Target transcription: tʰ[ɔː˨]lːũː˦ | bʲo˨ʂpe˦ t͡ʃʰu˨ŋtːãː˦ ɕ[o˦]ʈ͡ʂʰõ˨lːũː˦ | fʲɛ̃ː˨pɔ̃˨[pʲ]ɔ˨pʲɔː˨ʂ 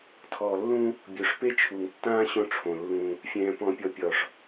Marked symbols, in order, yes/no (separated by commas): yes, no, yes